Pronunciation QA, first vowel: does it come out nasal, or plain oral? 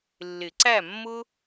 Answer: oral